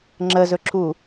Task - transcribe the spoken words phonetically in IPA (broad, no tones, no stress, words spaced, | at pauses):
ŋ͡ǁəzɵǁʰu